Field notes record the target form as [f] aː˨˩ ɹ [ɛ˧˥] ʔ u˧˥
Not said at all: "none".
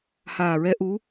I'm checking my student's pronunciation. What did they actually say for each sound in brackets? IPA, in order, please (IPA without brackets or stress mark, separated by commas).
h, ɛ˧˥